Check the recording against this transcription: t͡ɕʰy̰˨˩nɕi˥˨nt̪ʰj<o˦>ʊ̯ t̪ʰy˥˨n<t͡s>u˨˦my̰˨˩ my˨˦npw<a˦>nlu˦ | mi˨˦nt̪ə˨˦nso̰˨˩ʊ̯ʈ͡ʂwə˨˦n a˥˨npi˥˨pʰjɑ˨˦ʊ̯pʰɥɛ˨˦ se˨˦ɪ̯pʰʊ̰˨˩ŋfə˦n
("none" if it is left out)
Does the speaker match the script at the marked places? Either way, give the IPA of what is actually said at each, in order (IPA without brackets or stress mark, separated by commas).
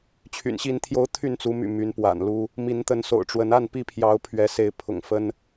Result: o˦, t͡s, a̰˨˩